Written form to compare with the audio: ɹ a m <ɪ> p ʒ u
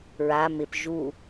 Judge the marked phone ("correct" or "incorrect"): correct